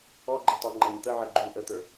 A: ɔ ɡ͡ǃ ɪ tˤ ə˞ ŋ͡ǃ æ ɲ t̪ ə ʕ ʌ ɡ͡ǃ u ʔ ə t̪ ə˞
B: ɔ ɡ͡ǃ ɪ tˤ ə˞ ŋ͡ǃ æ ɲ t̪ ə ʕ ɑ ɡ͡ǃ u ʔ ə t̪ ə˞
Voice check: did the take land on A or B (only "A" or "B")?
A